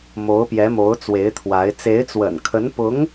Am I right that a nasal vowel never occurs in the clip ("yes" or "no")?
yes